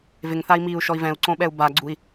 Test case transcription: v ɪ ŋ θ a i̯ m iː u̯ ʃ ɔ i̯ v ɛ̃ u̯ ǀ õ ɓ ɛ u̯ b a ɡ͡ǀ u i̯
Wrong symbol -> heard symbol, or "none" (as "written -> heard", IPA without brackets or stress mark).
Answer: none